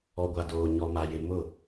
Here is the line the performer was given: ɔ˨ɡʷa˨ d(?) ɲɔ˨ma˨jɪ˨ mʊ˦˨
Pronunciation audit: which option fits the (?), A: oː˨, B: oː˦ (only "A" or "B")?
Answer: A